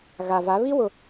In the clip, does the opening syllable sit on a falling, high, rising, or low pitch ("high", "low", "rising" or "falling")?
low